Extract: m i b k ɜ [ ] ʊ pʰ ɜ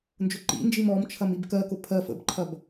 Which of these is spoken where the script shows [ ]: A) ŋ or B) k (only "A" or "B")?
B